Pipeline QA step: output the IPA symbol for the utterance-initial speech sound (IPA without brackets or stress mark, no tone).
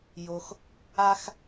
j